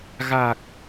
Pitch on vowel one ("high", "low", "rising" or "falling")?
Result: low